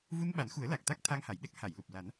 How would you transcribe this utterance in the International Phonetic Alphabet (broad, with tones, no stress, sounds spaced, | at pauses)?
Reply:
v u˧ n ɓ a˨˩˦ n x u˨˩˦ ə̯ l a˨˩ k̚ t̪ a˦˥ k̚ t̪ʰ a˧ ŋ h a˨˩˨ j ɗ ɛ˦˥ k̚ h a˨˩˨ j l u˨˩ p̚ l a˨˩˦ n